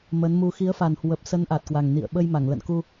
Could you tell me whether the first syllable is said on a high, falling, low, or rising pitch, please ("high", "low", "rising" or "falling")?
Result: rising